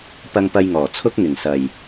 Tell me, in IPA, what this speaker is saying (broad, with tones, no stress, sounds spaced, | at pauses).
p ɐ˧ ŋ p ɐ˧ j ŋ ɔː˨˩ t͡sʰ ʊ˧ k̚ ŋ ɪ˨˩ ŋ s ɐ˨ j